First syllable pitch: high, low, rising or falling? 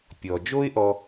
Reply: low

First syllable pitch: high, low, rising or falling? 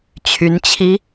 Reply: rising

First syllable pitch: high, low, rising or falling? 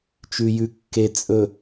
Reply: low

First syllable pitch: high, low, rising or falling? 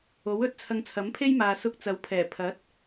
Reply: rising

